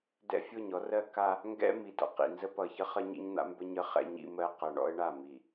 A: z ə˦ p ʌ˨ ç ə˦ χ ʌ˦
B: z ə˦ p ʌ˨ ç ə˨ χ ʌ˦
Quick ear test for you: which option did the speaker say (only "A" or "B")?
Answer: A